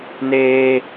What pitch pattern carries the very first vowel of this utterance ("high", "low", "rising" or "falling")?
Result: high